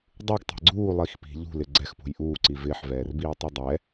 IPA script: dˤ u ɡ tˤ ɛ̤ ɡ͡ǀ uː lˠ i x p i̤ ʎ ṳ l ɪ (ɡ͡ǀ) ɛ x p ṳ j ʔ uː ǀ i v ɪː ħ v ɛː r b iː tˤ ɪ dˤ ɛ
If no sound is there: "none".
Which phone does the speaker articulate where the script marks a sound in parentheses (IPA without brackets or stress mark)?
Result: ɡ͡ǀ